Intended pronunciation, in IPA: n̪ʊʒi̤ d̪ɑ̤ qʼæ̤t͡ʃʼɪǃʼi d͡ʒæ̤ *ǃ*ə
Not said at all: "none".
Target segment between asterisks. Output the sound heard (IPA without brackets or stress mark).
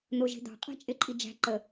ǃ